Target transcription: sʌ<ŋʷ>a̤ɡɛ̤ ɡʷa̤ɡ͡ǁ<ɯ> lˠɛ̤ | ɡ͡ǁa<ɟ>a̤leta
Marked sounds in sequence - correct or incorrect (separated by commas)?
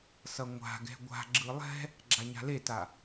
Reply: correct, correct, incorrect